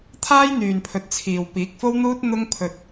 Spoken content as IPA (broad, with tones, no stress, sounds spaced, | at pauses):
t̪ʰ aː˥ j n̪ yː˨ n pʰ ɵ˨˥ t̚ t͡sʰ iː˨ w p iː˨˥ k̚ f o˥ w n̪ uː˥ t̚ n̪ ʊ˧ ŋ pʰ ɵ˨ t̚